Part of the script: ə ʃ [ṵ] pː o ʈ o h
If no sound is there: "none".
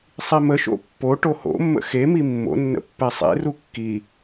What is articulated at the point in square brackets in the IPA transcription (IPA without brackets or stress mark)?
o̰